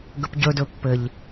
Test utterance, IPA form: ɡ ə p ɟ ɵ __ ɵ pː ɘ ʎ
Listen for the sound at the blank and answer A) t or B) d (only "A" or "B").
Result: B